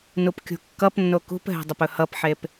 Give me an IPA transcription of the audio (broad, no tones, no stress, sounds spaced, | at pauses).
n u p kʲ ṳ kː ʌ p nː o k ṳ p ɦ ɛ̤ dˤ ə p ɵ h ʌ p ħ e p